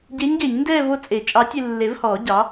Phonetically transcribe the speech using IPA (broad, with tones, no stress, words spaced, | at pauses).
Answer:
ɟe˧˥ɲɡe˨˩˦ɲndɛː˥˧ vo˥˧t͡sʼe˨˩˦t͡ʃʼɑ˧˥tʲ e˨lːe˨˩˦vhɔː˨˩˦ ɟɑ˩˥